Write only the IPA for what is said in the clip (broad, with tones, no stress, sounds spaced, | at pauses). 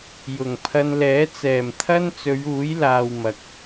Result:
j ʊ˨˩ ŋ pʰ ɐ˧ n l ɛː˨˥ t͡s ɛː˨˩ m t̪ʰ ɐ˥ n t͡s ɵ˨˧ ɥ uː˨˥ j l aː˨ w m ɐ˨ k̚